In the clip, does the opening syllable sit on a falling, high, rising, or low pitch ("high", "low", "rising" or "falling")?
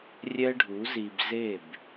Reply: high